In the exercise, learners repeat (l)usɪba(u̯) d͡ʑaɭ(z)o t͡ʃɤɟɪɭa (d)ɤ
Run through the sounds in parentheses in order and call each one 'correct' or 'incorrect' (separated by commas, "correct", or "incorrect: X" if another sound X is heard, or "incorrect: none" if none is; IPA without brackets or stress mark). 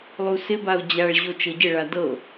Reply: incorrect: lˠ, correct, incorrect: ʑ, correct